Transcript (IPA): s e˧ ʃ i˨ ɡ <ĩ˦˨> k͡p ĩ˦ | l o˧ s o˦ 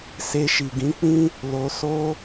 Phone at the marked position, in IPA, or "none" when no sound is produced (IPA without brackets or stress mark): ĩ˨˦